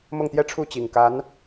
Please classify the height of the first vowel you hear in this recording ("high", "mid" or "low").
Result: mid